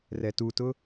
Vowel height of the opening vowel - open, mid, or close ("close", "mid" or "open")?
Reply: mid